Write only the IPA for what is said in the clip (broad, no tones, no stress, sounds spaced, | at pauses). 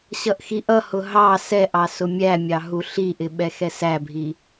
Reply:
ɕ ʌ ʔ x i ʔ ʌ h ʊ ɦ ɑ s ɛ ʔ ɑ s ʊ mʲ æ mʲ ɑ ɦ u ɬ i ʔ ɪ ɓ ɛ x ɛ s æ bʱ i